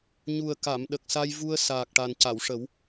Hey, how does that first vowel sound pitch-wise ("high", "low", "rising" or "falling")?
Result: low